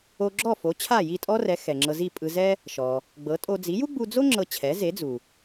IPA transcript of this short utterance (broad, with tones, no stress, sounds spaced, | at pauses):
o˧ ɡ͡ǁ ɔ˥˩ f o˩˥ t͡ɕʰ a˥˩ j i˥˩ tʼ ɔ˥ r ɛ˩˥ x ɛ˩ ŋ͡ǁ ɤ˧ z i˥˩ pʼ ɯ˧ z ɛ˥ | ʃ ɔ˩ | ɡ͡b ɤ˩˥ tʼ o˧ d͡z i˩˥ j u˥ ɡ͡b u˧ d͡z o˥ ŋ͡ǁ ɤ˧ t͡ɕʰ ɛ˩˥ z e˩˥ d͡z u˩